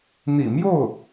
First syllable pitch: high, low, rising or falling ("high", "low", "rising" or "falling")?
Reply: low